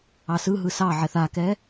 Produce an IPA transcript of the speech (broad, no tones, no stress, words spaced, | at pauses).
ɑsɯɦɯ sɑʕɛθ akɛ